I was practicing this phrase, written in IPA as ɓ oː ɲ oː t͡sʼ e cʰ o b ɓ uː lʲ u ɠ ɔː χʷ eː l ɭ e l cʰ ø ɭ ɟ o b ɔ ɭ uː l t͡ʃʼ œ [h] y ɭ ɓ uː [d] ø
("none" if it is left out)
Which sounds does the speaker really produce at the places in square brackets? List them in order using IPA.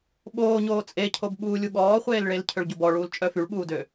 f, d

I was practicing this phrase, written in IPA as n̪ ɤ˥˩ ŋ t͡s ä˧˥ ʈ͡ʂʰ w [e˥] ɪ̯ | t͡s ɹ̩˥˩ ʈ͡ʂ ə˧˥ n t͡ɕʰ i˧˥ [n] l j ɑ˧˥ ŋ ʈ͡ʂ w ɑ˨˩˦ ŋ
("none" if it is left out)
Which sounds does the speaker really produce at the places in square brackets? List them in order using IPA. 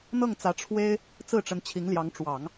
e˥, ŋ

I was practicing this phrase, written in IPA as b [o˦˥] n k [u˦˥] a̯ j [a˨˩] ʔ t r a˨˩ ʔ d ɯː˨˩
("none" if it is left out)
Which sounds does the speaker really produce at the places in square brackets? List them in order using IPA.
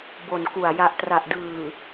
o˨˩, u˨˩, a˨˩

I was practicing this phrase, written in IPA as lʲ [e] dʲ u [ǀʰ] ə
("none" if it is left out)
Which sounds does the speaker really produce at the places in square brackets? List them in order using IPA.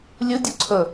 ɨ, ǀʰ

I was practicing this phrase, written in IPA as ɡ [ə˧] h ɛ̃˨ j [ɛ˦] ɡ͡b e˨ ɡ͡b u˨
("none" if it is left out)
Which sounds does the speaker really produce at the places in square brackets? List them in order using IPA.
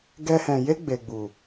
ɛ˧, e˦

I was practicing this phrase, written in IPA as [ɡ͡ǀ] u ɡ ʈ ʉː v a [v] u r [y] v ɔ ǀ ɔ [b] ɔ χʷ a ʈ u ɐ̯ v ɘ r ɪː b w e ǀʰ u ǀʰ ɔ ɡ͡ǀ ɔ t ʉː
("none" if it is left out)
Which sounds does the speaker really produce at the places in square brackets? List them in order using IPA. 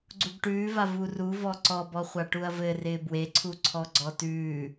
ɡ͡ǀ, v, u, b

